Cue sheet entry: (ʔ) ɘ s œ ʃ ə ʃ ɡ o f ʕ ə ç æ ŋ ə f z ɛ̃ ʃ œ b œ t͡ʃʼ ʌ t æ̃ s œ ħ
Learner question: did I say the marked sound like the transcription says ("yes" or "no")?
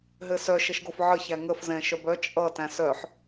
no